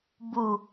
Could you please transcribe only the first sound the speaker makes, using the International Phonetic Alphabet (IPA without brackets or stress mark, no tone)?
b